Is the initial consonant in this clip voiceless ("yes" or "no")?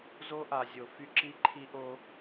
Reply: no